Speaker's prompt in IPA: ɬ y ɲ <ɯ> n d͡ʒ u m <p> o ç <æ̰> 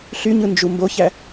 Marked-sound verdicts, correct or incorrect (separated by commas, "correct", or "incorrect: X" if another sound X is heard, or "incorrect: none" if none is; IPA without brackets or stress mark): correct, incorrect: b, incorrect: æ